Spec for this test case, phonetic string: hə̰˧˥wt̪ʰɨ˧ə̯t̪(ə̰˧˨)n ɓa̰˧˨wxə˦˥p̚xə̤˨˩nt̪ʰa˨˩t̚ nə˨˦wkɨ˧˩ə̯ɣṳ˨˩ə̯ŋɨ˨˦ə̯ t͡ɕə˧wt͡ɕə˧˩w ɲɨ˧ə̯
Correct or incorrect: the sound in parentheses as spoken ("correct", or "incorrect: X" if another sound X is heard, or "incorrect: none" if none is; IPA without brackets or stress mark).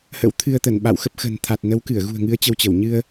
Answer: incorrect: ə˧˩